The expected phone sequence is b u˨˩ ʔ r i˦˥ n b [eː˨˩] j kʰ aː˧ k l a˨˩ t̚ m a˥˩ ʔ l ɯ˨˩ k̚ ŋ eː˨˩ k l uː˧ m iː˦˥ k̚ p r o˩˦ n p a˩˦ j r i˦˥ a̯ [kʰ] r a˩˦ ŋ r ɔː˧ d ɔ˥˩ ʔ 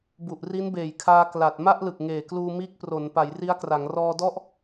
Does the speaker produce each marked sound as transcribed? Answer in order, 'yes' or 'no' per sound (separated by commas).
yes, no